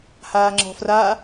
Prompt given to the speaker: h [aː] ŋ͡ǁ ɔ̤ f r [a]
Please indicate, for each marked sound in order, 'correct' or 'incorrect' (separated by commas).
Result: correct, correct